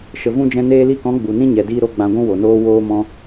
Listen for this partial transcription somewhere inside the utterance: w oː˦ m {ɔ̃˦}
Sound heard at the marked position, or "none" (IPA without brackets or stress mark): ɔ̃˦